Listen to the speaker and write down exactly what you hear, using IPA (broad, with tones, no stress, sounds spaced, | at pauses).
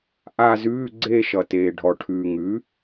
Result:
ʔ a˦˨ z ʉː˧˥˧ ɡ͡ǀ e˦˨ ʃ ʌ˩ t eː˩ ɖʱ ɔ˩ ʈʰ ʉː˩ ŋ ʉ˩˥